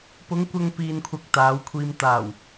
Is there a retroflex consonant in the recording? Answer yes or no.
no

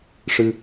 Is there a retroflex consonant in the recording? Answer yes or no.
yes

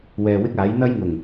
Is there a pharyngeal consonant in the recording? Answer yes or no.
no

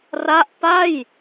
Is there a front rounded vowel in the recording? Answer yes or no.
no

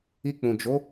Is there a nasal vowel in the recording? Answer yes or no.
yes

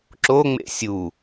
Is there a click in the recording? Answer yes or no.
yes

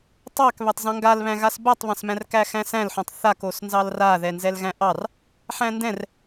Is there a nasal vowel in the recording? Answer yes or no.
yes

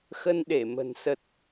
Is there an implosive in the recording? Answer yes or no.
yes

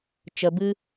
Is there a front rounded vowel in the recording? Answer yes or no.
no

